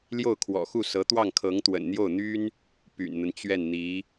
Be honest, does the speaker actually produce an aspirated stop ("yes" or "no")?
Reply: yes